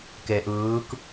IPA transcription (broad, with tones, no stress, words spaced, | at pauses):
ke˨ʔɯː˨˦k